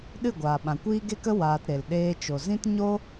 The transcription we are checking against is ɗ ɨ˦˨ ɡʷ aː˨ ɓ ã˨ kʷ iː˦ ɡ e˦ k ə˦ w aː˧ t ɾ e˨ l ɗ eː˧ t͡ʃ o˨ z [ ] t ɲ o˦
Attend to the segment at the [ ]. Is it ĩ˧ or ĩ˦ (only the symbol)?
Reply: ĩ˦